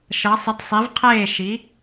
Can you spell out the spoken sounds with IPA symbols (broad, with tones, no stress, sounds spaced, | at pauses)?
ʃ ʌ˩˥ sˤ ɪ˩˥ d sˤ i˩˥ v qʰ eː˥˩ ʃ i˩˥